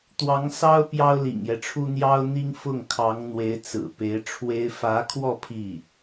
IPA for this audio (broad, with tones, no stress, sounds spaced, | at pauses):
t̪ w ɑ˧˥ ŋ s ɑ˥ ʊ̯ p j ɑ˥ ʊ̯ l ḭ˨˩ ŋ j ɛ˦ ʈ͡ʂʰ u˥ n̪ j ɑ˥ ʊ̯ n̪ i˥ ŋ f ʊ˥˩ ŋ kʰ ɑ˧˥ ŋ n̪ w e˧˥ ɪ̯ t͡s ɹ̩˨˩ p e˧˥ ɪ̯ ʈ͡ʂʰ w e˥ ɪ̯ f ä˧˥ kʰ w ɔ˥˧ pʰ i˥˩